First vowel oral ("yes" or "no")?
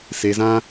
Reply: yes